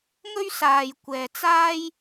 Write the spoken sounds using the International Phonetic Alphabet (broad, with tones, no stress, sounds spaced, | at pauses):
ŋ ɵ˥ ɥ s aː˨ j kʷ ɛː˨ t͡s aː˥ j